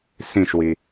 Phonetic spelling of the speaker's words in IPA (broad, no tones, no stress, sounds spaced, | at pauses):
s ĩ ʃ w i